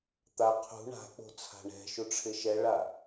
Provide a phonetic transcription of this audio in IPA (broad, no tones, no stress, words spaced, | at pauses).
t̪a qʰṳ ɳa̤k͡po̤ t͡sʰa̤ɳɛ̤ʃu ʈ͡ʂʰɪʃɛɭa